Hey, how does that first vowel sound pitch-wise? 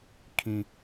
low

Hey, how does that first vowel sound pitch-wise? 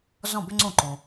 falling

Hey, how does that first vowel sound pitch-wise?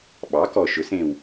rising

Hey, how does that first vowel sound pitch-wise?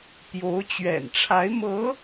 rising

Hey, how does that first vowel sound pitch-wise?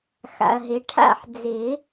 low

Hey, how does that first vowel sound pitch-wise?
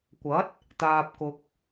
rising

